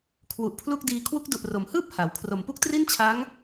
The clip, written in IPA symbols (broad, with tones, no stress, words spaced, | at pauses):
kʰwu˨˩ʔpʰlu˥˩k̚diː˧ kʰwu˦˥k̚du˨˩ʔro˩˦m hɯː˥˩p̚ ha˩˦w kʰro˨˩mpu˥˩k̚ tri˥˩nt͡ɕʰa˦˥ŋ